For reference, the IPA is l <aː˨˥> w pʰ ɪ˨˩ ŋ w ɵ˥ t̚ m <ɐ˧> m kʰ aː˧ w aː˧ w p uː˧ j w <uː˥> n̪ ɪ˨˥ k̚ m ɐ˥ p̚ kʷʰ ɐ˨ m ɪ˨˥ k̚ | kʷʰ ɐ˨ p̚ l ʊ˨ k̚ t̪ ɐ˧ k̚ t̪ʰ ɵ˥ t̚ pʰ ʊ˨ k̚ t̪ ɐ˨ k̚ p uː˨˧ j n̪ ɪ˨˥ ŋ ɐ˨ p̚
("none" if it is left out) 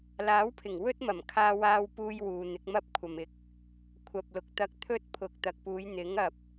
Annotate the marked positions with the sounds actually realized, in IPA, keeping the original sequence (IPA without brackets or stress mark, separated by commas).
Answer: aː˨˥, ɐ˨˩, uː˨